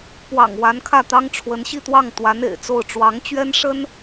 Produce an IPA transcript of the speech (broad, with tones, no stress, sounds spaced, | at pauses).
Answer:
p w ɑ̰˨˩ ŋ w a˧˥ n kʰ ä˥˩ t̪ ɑ˥ ŋ ʈ͡ʂʰ w ə˧˥ n ɕ i˥˧ t̪ w ɑ˥˩ ŋ t̪ w a˧˥ n ḛ˨˩ ɪ̯ t͡s o˥˩ ʊ̯ ʈ͡ʂ w ɑ˧˥ ŋ t͡ɕ ɥ ɛ˥ n ʂ ə˥ n